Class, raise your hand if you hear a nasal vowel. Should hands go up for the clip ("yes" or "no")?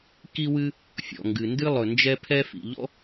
no